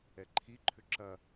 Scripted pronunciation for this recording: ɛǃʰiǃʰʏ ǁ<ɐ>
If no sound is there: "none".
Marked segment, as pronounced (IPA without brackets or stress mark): ɐ